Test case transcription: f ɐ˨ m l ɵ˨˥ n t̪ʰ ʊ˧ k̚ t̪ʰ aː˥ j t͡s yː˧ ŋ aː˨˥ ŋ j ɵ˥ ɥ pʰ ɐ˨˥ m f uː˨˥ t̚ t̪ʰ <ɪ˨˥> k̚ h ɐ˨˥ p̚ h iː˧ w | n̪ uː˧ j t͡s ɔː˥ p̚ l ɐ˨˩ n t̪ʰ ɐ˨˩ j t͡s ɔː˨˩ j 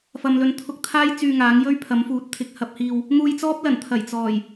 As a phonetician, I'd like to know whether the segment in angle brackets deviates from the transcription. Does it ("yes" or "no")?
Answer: no